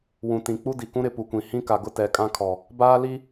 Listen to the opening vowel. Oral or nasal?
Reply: nasal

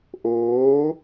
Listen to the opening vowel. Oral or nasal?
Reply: oral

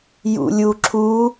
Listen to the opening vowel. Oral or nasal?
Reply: oral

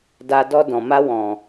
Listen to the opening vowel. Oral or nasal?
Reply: oral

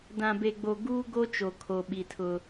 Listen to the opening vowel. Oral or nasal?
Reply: nasal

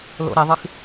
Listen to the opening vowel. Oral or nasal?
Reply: oral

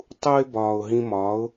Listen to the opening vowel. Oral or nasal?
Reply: oral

